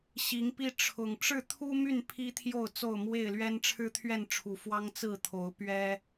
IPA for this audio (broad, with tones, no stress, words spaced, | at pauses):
ɕi˨˦ŋpi˦ ʈ͡ʂʰʊ˨˩ŋ ʈ͡ʂɻ̩˥˨t̪ʰu˦my˥˨n pʰi˦t̪ʰjo˥˨ʊ̯ t͡so˥˨ʊ̯mwe˥˨ɪ̯lɥɛ˦n ʈ͡ʂʰɻ̩˦t̪ʰɥɛ˥˨nʈ͡ʂʰu˨˩ fwɑ˦ŋt͡sɹ̩˥˨t̪ʰo˨˦ʊ̯ pɥɛ˦